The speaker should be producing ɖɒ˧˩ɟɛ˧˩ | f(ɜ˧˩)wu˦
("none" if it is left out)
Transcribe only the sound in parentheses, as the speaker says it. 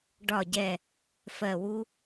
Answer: ɜ˧˩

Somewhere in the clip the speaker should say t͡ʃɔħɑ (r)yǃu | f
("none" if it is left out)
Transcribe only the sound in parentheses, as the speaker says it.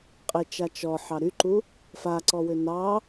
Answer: ɾ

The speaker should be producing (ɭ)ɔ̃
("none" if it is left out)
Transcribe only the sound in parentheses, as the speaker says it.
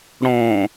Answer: ɽ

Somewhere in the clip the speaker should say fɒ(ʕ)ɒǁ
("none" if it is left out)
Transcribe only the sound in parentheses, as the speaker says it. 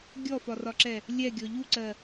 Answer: r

